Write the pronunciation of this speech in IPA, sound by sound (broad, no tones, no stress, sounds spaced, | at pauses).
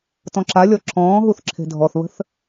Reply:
t ɔ̃ ǁ a lʲ ɔ ǁʰ ɔ̃ː ɦ u θ ǁʰ e̤ dʱ ɔ θ β ə̤ θ